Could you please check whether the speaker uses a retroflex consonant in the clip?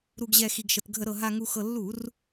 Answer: no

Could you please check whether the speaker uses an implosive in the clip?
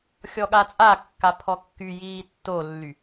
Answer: yes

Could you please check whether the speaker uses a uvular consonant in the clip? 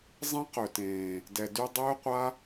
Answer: yes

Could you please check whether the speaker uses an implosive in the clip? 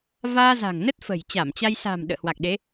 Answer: yes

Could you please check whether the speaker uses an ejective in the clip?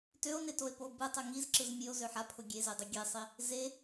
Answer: no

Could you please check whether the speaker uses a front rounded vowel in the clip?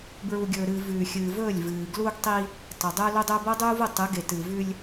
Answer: no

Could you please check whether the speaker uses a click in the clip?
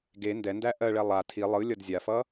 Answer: no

